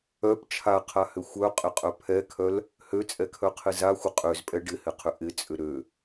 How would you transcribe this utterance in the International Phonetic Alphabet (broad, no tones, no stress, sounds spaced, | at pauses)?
œ p t͡ʃʰ a qʰ a h ʏ xʷ œ qʼ ɪ qʼ œ pʰ ɛ kʰ œ l | h ø t͡sʼ ɛ kʰ œ qʰ ɪ z a xʷ ɪ qʼ ø z pʼ ɛ ɖ ɪ h ɪ qʰ ʏ ʔ ɪ t͡sʼ ʏ ɾ ø